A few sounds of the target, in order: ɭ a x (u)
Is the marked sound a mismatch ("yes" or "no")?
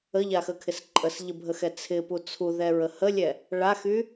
yes